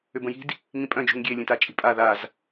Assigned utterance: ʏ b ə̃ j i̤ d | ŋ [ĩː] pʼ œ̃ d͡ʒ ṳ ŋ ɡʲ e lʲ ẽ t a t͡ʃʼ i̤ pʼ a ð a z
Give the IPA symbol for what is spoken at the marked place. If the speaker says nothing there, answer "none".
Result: ĩ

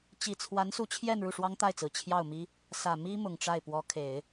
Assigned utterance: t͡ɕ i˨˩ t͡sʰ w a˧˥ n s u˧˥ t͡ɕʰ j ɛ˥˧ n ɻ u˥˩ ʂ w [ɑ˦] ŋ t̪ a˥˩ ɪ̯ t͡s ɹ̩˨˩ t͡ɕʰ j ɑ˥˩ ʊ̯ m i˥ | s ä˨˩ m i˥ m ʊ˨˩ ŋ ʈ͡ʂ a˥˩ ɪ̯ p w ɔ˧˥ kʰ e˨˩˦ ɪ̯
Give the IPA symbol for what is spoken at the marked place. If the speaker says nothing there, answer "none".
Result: ɑ˥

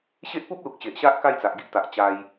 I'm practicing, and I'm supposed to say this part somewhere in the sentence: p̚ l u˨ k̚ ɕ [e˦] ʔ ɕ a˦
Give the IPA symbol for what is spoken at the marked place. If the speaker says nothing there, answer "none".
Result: e˨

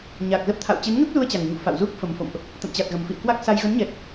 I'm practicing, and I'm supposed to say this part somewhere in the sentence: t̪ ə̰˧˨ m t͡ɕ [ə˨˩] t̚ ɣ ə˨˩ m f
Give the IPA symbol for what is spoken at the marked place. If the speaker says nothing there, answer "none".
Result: a˨˩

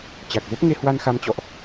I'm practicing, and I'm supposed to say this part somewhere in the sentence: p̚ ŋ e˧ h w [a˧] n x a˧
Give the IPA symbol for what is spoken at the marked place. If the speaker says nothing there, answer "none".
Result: a˧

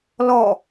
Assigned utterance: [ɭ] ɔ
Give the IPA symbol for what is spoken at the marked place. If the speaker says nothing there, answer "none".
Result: l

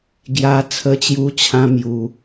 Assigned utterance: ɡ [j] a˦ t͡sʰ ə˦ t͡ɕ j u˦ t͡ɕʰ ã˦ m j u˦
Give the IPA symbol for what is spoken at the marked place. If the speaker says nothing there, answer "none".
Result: j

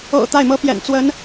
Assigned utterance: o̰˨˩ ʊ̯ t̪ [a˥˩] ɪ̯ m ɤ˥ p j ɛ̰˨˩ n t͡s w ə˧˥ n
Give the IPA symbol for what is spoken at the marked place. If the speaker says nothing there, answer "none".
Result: a˥˩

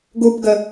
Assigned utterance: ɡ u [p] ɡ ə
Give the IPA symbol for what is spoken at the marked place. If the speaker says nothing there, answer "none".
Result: p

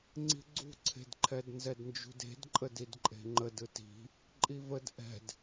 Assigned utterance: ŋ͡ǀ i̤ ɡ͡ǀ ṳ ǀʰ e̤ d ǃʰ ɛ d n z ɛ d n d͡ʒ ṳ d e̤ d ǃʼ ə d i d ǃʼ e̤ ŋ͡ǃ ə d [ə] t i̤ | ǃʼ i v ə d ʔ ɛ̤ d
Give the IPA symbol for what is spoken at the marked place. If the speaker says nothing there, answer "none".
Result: ɯ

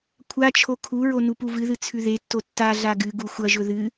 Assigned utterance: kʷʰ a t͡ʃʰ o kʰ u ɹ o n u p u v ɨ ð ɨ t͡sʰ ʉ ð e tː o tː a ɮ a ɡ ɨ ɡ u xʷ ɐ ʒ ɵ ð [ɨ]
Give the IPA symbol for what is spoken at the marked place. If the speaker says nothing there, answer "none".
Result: ɨ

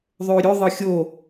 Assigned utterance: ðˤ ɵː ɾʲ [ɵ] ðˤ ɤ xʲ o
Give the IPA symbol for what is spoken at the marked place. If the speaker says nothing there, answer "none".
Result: ɵ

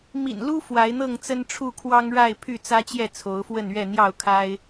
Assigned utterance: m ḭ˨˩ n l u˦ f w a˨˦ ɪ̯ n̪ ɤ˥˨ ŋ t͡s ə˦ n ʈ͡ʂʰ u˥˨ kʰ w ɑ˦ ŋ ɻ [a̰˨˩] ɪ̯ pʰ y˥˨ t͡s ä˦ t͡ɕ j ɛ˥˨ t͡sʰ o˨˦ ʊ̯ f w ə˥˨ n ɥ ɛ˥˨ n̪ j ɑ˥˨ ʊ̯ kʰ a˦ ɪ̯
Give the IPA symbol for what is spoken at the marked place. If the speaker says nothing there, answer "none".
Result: a˥˨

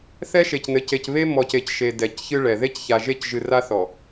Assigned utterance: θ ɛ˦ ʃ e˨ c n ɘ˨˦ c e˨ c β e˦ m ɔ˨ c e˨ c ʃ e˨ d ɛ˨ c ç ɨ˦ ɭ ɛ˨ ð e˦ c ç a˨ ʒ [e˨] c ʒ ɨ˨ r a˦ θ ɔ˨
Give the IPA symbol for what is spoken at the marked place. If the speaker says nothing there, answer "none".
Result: e˦˨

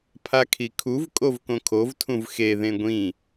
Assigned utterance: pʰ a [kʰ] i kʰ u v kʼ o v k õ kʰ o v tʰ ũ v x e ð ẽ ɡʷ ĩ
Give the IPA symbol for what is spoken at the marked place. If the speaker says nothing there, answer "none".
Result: kʰ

